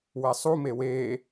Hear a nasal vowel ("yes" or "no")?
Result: no